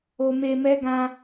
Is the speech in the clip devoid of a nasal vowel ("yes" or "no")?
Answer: no